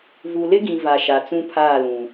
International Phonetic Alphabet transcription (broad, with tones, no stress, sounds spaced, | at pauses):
v u˨ l ɪ˦ ɡ ĩ˨ v a˨ ʃ a˨ t͡s ũ˦ pʰ aː˦˨ l ũ˨